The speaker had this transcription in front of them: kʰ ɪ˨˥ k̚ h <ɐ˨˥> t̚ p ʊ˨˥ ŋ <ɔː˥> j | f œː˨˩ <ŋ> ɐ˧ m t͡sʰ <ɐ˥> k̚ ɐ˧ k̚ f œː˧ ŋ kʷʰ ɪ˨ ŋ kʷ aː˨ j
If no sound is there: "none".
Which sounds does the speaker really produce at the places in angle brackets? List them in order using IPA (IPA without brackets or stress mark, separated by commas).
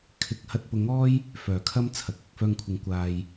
ɐ˧, ɔː˥, kʰ, ɐ˨